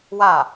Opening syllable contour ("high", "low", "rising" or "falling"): falling